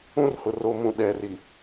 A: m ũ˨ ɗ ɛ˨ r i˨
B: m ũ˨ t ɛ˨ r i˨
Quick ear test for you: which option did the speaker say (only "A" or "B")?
A